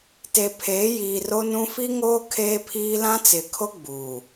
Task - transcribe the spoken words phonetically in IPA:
te˨pʰeː˨˦ jiː˨ro˦nũ˦ fi˦ŋoː˦ kʰeː˦pʰiː˦ lã˦t͡sɪ˨kʰo˦ ɡ͡buː˨

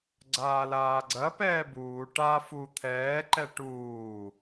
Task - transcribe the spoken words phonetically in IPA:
ɡ͡ǀaːlaːɡ͡ǀɐ pɛːbuː ʈa fu t̪ʰɛːǃɛ ʈuː

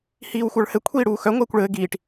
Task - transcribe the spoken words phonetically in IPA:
hiːwxʷə˞ɭhɘ kʷʰiːɽuːxœ ŋʷɘːkʷɭɘː ɡiːʈ

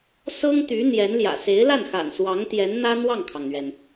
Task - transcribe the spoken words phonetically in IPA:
sɤ˥ŋt̪y˧˥ n̪jɛ˧˥nljä̰˨˩ se˧˥ɪ̯la˥˩nxa̰˨˩n swɑ˧˥ŋt̪jɛ˧˥nn̪ä˥ n̪wɑ˥˩ŋkʰɑ˩ŋn̪ɥɛ˩n

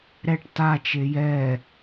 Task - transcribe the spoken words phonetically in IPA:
ɾɛʈ tat͡ʃe jɛ

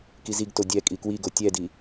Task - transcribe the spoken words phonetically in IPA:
kiziɡto dʲɛ kʼikwiɡo tʲɛdi

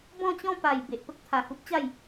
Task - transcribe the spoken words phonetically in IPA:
bɔ̃˥˧t͡ɕɔ̃˥˧pa˨˩j be˨ʔpə˦k̚ t̪ʰa˨˩hu˦p̚t͡ɕa˥˧j

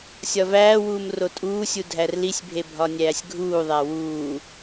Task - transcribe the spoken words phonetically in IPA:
sʲɒvæːwuːm rotʼuːsʲu dʱærlisʲbʱe bʱɒnʲæːsʲɡʱuːðˤæ wuː

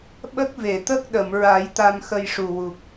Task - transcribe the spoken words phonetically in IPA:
ɓə˦˥k̚ve˨˩˨t̪ə˦˥k̚ ɗə˨˩˨mɹa˨˩˦j t̪a˧mxə˧jʂu˨˩wu˨˩k̚

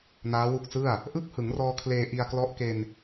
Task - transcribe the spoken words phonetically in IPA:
naː˦˥wu˦˥k̚sɯ˥˩a̯ | ʔɯ˥˩k̚hɯ˩˦ŋrɔː˧ kʰleː˧ ʔi˧a̯klɔ˦˥ʔke˧n

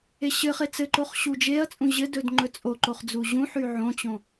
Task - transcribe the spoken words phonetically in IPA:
eɕɘχe t͡sɘǃoχ ɕud͡ʒeɐ̯t͡sʼũ ʑɘdɵd ŋ͡ǃɵt͡sʼoǃoχ d͡zuʑũħy ʕõt͡ɕõ

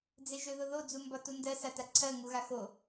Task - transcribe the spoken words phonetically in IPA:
d͡zeʒøðʊðo d͡zumbɒtundɜ sataǀʰɜ ŋuɣaxo

